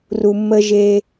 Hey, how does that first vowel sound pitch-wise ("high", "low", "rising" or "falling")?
low